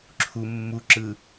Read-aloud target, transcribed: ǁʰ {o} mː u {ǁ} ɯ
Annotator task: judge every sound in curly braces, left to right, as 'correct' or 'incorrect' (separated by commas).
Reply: incorrect, correct